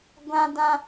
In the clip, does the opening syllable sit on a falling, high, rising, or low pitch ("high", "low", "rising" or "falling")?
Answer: high